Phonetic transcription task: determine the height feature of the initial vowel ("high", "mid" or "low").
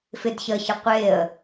high